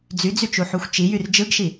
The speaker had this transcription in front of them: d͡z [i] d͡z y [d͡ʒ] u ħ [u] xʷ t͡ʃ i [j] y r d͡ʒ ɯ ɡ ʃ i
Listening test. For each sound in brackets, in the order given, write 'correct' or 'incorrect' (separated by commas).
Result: incorrect, incorrect, correct, correct